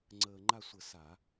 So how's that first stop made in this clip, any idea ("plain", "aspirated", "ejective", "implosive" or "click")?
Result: click